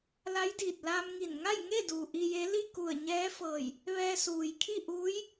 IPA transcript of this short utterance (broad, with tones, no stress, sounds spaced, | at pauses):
l a˧˥ j d iː˧˩ t̚ l aː˧ m ŋ i˧˩ n ŋ a˥˨ j ŋ e˥˨ d uː˩ ʔ i˧ j e˧˥ l i˥˨ k u˧˩ ə̯ ɲ ɛː˧˥ f ɤː˧˩ j | ʋ ɛː˧ s uː˩ j kʰ i˥˨ ʔ uː˧˥ j